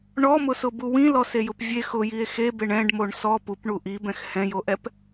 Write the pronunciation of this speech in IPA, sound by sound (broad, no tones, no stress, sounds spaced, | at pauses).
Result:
ɳ ɔ m ʊ s ʊ b u w ĩ l ɔ s e j ʊ p vʲ e x ʊ j i e̯ x e b e ɳ ɛ̃ ɖ m o ɳ s ɔ p u p ɳ u ʔ i b ɛ̃ x h ɛ̃ j o ʔ ɛ p